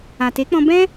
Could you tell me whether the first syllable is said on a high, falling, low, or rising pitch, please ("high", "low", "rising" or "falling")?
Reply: low